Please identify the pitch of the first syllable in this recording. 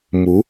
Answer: rising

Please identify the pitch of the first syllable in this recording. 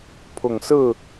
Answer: low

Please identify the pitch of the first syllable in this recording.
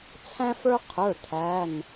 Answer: high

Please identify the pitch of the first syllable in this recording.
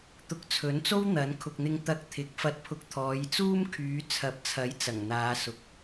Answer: rising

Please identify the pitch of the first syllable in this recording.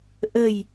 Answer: low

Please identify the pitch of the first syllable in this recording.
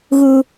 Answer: high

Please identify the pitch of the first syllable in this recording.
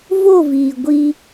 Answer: falling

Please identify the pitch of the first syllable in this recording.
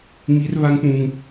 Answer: high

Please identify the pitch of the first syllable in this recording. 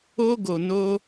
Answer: high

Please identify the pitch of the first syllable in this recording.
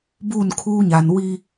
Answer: falling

